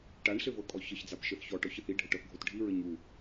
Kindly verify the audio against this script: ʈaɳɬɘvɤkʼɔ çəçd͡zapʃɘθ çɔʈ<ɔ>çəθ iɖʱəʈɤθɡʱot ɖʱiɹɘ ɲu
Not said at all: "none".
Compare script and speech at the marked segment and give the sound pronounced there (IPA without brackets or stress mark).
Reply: ɔ